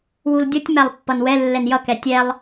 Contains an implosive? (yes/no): no